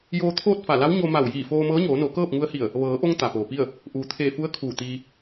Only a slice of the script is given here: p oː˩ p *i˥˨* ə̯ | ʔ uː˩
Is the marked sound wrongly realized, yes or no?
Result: no